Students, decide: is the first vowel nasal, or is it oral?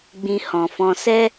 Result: nasal